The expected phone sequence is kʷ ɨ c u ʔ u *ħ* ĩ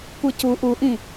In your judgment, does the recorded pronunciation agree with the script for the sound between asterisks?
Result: no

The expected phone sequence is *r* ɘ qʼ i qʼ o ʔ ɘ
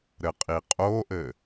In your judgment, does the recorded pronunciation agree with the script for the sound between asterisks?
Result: no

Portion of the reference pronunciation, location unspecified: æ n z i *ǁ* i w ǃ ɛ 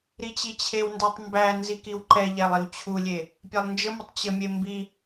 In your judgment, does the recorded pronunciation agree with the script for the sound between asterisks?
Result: no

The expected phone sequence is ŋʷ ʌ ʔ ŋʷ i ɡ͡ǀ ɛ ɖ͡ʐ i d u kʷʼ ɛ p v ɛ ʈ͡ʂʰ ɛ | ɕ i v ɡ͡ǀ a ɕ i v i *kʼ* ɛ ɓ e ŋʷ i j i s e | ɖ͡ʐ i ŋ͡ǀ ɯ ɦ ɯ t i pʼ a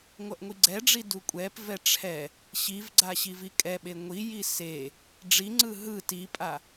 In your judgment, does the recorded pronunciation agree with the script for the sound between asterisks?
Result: yes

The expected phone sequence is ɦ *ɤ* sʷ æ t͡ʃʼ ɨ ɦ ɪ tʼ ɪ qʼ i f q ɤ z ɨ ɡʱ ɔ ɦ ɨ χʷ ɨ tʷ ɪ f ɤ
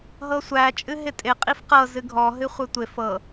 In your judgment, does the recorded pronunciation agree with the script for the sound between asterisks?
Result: yes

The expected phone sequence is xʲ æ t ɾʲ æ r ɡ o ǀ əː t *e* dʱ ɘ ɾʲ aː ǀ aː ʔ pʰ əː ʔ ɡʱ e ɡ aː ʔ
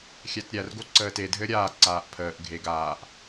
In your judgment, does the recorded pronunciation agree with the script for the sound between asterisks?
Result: yes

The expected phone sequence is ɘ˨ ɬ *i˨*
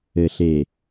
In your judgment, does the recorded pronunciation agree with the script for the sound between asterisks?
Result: no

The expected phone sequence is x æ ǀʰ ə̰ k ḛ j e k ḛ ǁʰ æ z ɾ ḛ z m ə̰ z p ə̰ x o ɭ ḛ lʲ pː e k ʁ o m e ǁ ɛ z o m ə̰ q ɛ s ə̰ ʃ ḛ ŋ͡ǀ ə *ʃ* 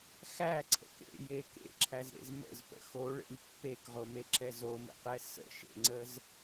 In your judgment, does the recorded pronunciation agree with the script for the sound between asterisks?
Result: no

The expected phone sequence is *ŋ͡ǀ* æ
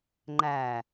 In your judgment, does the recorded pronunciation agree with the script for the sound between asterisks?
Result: no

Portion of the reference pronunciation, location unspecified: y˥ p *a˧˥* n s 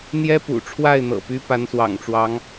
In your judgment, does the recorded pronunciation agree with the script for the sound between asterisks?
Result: yes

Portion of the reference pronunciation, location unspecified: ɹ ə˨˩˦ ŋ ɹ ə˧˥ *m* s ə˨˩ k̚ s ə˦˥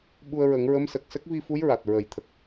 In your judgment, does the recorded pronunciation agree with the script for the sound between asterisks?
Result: yes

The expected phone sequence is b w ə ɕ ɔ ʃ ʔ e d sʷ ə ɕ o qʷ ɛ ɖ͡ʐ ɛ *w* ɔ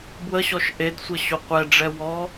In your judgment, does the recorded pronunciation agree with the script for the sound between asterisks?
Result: yes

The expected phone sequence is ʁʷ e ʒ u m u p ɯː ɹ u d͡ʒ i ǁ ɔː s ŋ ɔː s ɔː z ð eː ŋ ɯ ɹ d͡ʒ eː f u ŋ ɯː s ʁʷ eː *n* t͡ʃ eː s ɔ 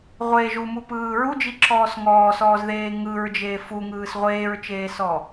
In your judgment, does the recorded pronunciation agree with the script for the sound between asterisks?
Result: no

